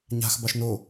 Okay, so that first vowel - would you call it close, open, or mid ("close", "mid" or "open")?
open